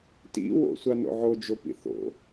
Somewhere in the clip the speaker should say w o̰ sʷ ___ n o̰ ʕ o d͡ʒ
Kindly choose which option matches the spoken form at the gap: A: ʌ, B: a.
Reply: B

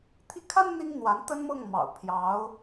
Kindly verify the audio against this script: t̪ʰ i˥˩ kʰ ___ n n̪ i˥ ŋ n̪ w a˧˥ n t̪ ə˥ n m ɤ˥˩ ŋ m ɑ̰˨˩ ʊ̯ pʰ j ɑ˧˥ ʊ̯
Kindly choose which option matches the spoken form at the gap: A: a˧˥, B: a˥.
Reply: B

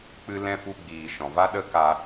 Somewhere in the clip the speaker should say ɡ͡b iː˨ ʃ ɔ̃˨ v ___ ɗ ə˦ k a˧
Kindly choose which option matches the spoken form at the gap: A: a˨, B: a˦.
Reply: B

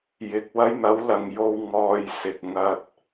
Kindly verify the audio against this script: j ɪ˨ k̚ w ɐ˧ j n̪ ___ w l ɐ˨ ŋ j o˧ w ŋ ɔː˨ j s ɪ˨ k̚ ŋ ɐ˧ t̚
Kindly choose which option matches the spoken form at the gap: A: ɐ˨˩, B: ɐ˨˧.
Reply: B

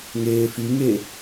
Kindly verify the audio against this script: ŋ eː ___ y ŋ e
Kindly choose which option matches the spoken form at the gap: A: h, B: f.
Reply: B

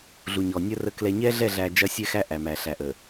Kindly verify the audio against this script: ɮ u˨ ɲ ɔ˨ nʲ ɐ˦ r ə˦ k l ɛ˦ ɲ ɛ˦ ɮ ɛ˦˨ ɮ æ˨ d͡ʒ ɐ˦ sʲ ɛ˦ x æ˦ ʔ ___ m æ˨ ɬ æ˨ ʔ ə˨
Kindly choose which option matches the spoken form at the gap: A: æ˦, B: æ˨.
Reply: B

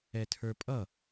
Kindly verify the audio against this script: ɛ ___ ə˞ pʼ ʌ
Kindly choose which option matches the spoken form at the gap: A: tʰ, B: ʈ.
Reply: A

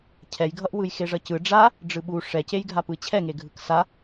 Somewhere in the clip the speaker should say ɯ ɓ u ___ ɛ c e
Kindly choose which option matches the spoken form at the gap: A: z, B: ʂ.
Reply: B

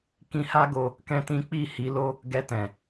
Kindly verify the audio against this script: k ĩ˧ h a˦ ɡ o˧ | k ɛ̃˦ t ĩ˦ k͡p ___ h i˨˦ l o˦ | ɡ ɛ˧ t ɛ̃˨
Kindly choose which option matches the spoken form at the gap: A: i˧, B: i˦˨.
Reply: B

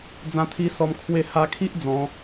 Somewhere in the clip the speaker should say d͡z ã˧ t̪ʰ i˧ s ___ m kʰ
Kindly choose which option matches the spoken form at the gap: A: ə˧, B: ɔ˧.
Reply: B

